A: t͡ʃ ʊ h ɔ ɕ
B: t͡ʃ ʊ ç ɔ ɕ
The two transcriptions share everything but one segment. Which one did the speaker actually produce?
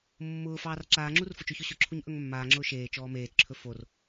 B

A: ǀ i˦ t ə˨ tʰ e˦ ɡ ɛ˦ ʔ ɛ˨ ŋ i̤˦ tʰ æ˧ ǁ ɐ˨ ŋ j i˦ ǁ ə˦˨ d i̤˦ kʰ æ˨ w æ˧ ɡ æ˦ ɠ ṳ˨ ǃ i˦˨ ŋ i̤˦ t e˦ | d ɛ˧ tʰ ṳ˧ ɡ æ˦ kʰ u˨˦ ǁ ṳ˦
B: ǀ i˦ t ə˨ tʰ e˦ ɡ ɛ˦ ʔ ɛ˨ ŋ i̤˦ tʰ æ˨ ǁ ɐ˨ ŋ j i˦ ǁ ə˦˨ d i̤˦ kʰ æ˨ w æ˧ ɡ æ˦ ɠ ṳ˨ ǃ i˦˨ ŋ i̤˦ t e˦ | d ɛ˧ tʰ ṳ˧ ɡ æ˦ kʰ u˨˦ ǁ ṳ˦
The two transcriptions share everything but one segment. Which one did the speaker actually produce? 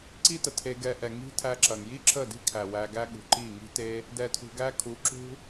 A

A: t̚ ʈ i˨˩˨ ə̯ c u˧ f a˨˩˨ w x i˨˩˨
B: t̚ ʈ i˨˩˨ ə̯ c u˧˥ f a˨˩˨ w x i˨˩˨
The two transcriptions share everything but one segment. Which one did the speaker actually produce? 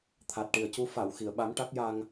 B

